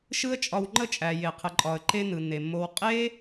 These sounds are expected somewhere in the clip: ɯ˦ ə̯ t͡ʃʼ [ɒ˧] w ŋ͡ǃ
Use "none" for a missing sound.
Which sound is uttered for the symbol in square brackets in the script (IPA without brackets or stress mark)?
ɒ˧